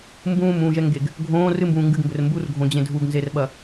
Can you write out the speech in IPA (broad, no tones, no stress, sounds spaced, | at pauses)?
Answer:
m b ũː m ũː ʒ ɛ ŋ ɡ e ɡ | ɡʱ õː r ɨ m b ũː ŋ ɡ ɨ ɡ m b ɘ r m b u r ɡʱ õ d͡ʑ ẽ dʱ u ɡ n z e r ɓ ɐ